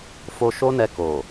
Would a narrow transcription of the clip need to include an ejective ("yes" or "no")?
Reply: no